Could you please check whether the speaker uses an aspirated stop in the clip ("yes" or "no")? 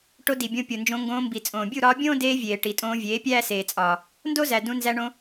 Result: no